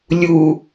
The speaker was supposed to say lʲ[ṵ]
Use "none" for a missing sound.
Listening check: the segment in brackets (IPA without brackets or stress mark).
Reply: u